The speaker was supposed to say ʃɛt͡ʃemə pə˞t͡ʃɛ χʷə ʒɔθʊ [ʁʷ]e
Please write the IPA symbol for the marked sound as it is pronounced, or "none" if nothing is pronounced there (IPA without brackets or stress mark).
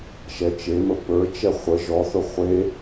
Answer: χʷ